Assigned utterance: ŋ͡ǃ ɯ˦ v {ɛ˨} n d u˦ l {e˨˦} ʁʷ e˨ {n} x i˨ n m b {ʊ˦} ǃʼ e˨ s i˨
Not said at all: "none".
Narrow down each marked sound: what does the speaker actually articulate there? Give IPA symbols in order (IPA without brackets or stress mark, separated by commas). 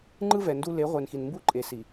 ɛ˨, e˨˦, n, u˦